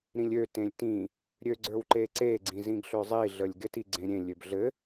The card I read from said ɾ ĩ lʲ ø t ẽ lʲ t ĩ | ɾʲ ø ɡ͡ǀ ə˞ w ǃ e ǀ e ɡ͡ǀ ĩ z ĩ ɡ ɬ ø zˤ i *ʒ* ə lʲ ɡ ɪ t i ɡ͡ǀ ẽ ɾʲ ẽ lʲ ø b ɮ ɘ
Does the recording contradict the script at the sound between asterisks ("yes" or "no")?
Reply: yes